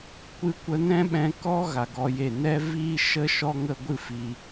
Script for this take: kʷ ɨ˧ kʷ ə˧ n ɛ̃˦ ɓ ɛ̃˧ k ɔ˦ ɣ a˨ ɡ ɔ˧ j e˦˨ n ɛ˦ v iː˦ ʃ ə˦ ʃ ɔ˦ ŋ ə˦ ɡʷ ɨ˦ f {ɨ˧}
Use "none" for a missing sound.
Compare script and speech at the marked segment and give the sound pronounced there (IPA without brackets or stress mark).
i˧